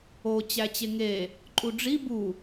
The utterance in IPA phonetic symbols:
o t͡ɕ æ t͡ɕ e ŋ e | ǃʼ u ɖ͡ʐ i b u

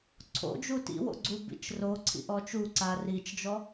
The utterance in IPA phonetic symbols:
ǀʰ o̰ d͡ʒ u t ḭ w o̰ ɡ͡ǀ u b ḭ t͡ʃ r o ǀʰ ḭ ʔ ɔ t͡ʃ u ǀ a r i t͡ʃ d͡ʒ ɔ

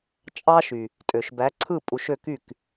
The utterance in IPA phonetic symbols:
t͡ʃʼ ɑ˧ ʃ y˩ | tʼ ø˩ ʃ b æ˩˥ ǀʰ ɯ˥˩ pʼ u˧ ʃ ø˥˩ k y˥˩ k

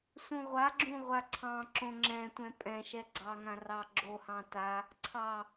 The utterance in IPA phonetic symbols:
s ũ ʁʷ a ɡ͡ǁ ũ ʁʷ a ǀʰ ɑ̃ ǁ õ ŋ͡ǁ ɛ̃ tʷ ɛ̃ pʼ ɛ̃ ʃ ɛ ɡ͡ǀ ɑ ŋ ã r ɑ ɡ͡ǁ o h ɑ̃ t a | ǀʰ ɑ

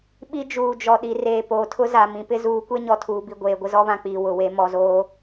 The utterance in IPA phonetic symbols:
ɓ i˦ d͡ʒ uː˨ d͡ʒ ɔ˨ ɗ i˨ r eː˨ p oː˨ tʰ ʊ˦ z a˨ m ĩ˨ p ɪ˦ z uː˨˦ kʷ e˦ ɲ ɔ˨ tʰ uː˨ b i˨ ɡʷ eː˨ ɡʷ ɪ˦ z ɔ˦ β ã˨ k͡p iː˨ w ʊ˨ w e˦ m ɔ˨ z oː˦

